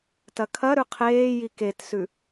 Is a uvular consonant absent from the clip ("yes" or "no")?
no